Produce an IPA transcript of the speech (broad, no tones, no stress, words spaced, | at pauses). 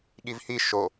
ɠivhi ʃo